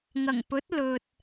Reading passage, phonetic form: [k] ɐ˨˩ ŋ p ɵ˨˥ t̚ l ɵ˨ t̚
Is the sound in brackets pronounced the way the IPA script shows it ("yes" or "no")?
no